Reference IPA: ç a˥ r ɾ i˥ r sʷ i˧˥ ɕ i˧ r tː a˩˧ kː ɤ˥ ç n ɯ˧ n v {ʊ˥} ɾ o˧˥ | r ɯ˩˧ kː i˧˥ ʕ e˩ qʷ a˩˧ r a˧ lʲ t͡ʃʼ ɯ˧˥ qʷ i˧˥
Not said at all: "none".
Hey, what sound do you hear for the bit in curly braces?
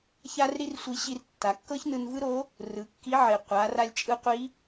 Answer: ɯ˥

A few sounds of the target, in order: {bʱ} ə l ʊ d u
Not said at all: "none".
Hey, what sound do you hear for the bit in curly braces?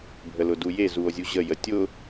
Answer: bʱ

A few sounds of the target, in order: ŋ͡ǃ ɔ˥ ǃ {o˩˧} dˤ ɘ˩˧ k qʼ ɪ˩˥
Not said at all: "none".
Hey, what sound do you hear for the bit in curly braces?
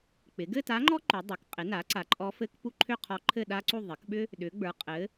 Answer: u˩˧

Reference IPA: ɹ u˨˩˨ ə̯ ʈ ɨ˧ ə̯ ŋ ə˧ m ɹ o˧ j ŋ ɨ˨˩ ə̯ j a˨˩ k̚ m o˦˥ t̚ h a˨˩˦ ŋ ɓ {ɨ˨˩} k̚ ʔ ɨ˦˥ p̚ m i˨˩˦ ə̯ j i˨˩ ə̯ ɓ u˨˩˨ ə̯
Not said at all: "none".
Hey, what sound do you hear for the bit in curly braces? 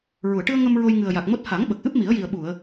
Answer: ə˨˩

